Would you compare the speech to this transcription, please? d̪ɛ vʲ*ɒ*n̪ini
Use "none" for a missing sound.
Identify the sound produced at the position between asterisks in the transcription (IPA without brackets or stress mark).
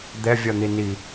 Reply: ɒ